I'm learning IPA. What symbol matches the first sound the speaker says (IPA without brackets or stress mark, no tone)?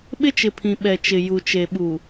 ɓ